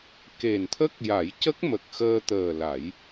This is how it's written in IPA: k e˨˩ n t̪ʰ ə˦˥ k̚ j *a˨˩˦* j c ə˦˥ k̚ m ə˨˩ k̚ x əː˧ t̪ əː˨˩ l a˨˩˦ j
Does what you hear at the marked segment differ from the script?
no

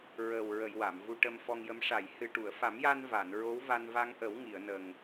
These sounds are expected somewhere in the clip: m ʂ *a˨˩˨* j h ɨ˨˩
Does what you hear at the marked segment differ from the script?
no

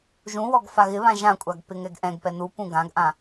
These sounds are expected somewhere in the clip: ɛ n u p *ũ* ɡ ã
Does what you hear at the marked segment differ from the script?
no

